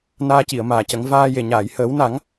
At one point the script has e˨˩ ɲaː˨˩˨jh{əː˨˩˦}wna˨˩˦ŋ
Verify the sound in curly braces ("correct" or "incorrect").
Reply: correct